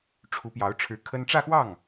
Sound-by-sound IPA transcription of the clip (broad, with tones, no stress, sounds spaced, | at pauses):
ʈ͡ʂʰ u˧˥ p j ɑ˧˥ ʊ̯ ʈ͡ʂʰ ɻ̩˧˥ kʰ ə˥ n ʈ͡ʂ ä˥˧ x w ɑ˥˩ ŋ